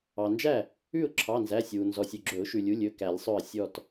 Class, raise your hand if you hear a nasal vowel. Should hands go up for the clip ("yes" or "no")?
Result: no